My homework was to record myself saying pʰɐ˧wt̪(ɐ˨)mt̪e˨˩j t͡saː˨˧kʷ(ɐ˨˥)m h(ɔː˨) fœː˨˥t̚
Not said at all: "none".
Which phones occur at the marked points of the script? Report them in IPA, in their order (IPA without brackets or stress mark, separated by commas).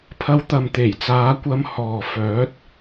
ɐ˨, ɐ˧, ɔː˨